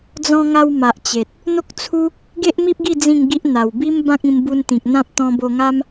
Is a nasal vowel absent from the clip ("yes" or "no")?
no